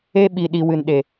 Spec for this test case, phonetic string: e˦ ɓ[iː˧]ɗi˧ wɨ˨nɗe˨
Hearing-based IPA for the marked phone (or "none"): i˧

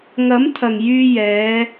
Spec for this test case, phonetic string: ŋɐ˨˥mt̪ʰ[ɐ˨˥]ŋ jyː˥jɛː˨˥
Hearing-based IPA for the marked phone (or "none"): ɐ˨˩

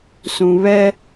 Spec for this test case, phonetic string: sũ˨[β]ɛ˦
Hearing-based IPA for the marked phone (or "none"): β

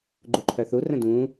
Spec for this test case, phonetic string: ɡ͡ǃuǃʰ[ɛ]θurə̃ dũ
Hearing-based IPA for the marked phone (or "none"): œ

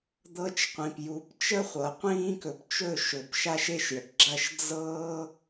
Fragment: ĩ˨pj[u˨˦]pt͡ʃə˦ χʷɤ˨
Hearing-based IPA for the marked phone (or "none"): u˨˦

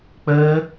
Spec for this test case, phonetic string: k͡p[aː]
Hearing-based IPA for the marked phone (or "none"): əː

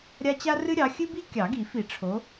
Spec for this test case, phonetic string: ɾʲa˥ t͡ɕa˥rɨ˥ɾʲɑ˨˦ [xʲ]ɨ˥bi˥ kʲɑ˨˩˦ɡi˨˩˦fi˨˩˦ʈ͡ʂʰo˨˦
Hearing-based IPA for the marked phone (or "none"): xʲ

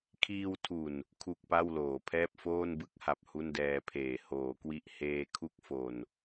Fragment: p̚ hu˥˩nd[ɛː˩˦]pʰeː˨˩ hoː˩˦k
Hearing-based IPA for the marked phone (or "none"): ɛː˧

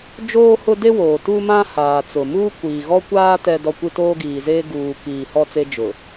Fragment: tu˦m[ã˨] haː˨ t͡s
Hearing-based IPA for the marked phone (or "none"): ã˦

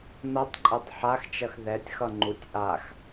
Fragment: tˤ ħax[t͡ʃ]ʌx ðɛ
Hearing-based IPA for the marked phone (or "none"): t͡ʃ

